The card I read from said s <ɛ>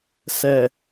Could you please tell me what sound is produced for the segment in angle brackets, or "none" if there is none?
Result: ɛ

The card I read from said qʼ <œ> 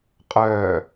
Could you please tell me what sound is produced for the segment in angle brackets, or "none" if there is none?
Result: œː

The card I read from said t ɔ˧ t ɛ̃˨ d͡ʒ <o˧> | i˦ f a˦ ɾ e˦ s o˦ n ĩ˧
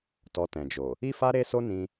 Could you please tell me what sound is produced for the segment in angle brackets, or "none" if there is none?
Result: o˨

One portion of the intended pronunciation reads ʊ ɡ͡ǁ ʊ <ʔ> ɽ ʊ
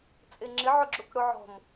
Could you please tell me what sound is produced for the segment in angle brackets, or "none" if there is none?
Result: k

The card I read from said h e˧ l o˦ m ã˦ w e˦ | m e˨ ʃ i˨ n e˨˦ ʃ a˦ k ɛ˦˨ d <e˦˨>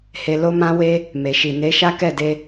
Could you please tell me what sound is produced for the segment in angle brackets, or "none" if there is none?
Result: e˧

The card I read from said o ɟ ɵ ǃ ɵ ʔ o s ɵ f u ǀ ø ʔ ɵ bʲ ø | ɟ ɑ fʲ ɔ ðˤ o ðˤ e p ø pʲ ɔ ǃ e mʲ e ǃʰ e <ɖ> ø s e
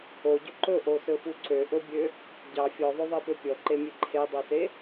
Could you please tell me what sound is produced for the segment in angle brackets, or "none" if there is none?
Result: dˤ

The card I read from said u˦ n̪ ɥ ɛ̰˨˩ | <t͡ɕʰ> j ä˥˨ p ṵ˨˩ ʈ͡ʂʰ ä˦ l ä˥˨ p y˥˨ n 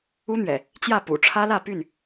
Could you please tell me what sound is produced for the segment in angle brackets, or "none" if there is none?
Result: t͡ɕ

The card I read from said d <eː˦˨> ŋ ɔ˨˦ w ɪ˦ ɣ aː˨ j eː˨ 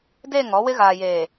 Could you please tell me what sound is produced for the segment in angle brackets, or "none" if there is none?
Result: eː˦˨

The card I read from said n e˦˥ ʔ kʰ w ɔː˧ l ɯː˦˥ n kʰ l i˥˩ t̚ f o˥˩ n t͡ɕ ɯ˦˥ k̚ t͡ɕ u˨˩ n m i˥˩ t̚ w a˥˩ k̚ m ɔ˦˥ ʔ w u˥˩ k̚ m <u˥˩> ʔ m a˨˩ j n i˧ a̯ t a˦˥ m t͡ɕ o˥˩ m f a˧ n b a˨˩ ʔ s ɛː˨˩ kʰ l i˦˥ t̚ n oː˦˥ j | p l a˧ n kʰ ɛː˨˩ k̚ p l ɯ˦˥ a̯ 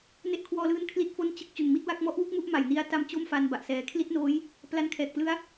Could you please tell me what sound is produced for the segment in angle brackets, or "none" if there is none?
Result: u˥˩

